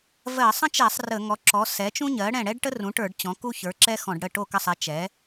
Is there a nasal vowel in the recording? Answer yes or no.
yes